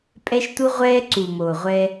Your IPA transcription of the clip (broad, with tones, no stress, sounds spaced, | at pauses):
pʼ ɛ˧ ʃ t u˧ ʁʷ ɛː˧ ǀ u˨ m o˨ ʁʷ ɛ˧